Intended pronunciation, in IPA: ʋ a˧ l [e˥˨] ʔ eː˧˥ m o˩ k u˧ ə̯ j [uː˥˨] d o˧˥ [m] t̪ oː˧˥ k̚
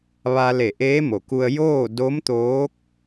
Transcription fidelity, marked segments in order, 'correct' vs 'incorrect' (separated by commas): incorrect, incorrect, correct